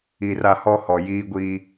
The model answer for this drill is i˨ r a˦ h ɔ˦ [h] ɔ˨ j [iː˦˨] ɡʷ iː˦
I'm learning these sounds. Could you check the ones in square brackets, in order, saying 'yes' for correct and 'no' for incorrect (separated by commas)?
yes, no